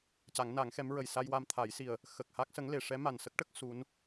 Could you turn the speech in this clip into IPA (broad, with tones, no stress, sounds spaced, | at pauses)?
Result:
c a˨˩˦ ŋ n a˨˩˦ ŋ x ɛ˧˥ m ɹ ə˨˩ j s a˧ j w a˧ m t̪ʰ a˨˩˦ j s i˨˩ ə̯ | x ə˨˩ k̚ h a˦˥ k̚ s ə˧˥ ŋ l e˨˩˨ ʂ ɛ˧˥ m a˨˩ n s ə˦˥ k̚ ʈ ə˦˥ k̚ s u˧˥ n